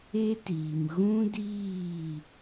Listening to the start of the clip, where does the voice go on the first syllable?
high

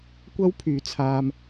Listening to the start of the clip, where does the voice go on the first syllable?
high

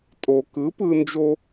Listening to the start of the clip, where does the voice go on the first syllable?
low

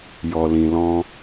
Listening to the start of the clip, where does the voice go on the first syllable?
low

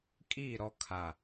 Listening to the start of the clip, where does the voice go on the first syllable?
falling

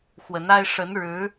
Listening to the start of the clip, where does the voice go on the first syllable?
rising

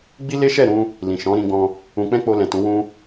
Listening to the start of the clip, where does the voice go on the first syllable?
high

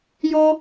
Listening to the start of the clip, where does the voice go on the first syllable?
high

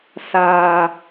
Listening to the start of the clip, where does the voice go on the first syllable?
low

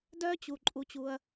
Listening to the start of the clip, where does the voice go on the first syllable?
high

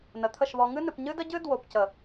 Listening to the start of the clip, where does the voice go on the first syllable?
low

